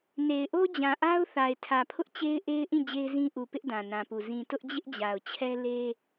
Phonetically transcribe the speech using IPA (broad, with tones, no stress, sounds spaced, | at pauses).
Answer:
n e˨ ɪ̯ ʔ o˦ d͡ʑ ã˨ ʔ a˦ ʊ̯ θ a˨ ɪ̯ tʰ ä˨ pʰ ʊ˦ ʔ t͡ɕ e˦ ɪ̯ ʔ e˦ ɪ̯ ʔ ĩ˦˨ d͡ʑ e˦ ɪ̯ z ĩ˦ ʔ u˨ p ɪ˦ ʔ d ã˨ n ã˨ p u˨ z ĩ˨ t ʊ˦ ʔ d͡ʑ ɪ˦ ʔ d͡ʑ a˨ ʊ̯ t͡ɕʰ ɛ˦ l e˦